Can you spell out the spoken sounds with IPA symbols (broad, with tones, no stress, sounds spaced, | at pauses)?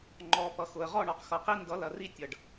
ŋ͡ǃ ɔ˨ p ʌ˨ x ʊ˨ ə̯ ʁ ɔ˦˨ ɳ ɔ˨ q x ʌ˨ q i˦ n d ʌ˨˦ l ɐ˨ r i˦ tʲ ʌ˨ ɖ